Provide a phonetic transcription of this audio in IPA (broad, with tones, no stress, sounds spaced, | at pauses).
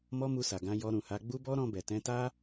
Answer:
m ɔ˦ m u˧ s a˨ ɡ ã˧ j ɔ˧ ɾ ũ˨ h a˧ ɡ͡b u˦ b ɔ˦ ɾ ɔ̃˧ b ɛ˨ t ɛ̃˧ t a˦